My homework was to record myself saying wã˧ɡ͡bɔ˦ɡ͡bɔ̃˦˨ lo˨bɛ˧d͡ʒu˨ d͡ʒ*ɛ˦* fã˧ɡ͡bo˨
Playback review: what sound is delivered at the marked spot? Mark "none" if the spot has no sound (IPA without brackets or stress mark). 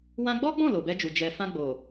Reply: ɛ˨